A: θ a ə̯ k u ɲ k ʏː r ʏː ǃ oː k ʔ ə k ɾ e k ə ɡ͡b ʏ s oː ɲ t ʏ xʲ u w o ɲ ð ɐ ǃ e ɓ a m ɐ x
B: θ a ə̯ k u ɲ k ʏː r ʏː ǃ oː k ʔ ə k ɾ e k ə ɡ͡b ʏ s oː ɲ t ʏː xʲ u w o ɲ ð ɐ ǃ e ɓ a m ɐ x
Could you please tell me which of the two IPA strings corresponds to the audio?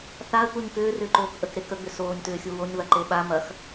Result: B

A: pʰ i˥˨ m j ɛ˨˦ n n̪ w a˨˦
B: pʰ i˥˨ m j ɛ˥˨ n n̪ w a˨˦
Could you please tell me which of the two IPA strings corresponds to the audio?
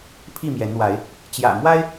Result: A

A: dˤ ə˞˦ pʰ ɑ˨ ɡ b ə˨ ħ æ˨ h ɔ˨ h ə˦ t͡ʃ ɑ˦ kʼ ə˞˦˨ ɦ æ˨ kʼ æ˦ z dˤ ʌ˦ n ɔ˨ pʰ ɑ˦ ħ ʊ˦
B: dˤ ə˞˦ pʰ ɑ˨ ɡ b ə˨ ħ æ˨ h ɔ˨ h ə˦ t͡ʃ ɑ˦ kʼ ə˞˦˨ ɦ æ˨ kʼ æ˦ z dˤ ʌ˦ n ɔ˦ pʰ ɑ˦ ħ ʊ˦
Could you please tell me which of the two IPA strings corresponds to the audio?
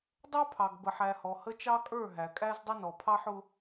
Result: A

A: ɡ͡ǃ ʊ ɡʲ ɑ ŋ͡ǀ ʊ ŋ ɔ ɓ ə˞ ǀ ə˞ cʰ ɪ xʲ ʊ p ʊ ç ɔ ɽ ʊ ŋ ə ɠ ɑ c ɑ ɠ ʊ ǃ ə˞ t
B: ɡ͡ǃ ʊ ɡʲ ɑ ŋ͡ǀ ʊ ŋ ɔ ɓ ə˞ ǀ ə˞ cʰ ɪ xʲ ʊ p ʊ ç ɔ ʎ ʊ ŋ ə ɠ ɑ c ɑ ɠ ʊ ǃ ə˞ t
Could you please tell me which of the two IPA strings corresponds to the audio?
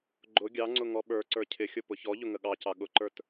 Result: B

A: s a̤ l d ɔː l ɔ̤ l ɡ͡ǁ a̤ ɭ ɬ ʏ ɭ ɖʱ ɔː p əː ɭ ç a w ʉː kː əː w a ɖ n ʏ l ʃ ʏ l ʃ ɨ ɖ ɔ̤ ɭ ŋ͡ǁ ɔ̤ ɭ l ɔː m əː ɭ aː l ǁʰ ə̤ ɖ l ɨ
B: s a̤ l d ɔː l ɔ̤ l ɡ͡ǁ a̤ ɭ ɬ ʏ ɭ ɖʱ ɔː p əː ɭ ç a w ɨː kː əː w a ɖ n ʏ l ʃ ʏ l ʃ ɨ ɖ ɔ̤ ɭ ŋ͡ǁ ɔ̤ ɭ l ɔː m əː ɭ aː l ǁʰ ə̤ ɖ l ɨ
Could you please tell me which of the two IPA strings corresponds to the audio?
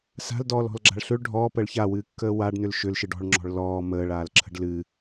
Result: B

